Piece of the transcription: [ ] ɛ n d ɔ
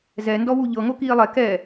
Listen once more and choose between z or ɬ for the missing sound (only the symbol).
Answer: z